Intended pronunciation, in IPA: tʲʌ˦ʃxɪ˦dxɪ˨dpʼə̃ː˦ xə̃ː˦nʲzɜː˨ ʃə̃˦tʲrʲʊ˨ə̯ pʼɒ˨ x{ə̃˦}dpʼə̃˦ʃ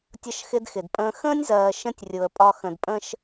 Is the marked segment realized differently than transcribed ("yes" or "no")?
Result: yes